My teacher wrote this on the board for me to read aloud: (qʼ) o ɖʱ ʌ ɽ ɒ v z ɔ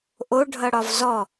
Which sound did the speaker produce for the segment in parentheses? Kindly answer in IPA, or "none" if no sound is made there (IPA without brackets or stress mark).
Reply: ʔ